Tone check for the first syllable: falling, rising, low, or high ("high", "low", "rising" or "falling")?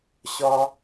high